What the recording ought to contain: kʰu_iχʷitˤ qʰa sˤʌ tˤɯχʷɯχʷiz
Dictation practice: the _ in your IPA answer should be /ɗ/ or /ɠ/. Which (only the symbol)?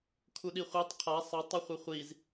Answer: ɗ